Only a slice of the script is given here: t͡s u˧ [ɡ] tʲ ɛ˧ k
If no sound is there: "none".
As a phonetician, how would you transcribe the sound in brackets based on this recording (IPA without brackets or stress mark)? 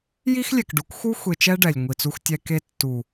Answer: x